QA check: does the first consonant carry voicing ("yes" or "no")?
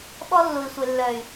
yes